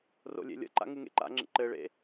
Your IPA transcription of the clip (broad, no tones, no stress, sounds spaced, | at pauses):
r o̰ lʲ ḛ lʲ ə̰ ǃ a̰ ŋ u ŋ ḛ ǃ a̰ ŋ͡ǁ ə̰ ǃ ɘ ɭ ḛ